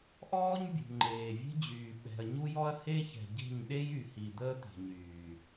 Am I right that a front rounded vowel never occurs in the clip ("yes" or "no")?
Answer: no